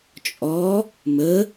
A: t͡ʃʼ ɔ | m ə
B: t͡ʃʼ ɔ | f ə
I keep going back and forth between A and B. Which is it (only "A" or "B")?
A